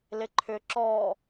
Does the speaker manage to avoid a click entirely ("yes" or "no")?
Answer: no